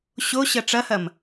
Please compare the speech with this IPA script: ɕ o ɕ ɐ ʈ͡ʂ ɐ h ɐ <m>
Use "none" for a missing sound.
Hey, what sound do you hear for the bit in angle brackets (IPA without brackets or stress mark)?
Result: m